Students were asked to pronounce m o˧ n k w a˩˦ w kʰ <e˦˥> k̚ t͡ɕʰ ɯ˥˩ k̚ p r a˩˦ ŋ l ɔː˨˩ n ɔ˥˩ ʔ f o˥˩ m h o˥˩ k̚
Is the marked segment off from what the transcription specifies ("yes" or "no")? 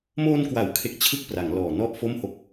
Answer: no